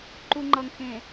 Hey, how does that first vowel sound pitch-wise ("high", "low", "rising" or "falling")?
low